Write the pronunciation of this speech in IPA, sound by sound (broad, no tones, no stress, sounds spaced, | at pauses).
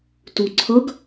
t u ǀʰ ʌ ɡ